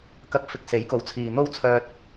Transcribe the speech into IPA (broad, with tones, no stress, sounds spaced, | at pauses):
k ɐ˨˥ k̚ f ɪ˨˥ k̚ s e˨˥ j k o˨˧ w t͡sʰ iː˨ n̪ o˥ w t͡sʰ œː˧ t̚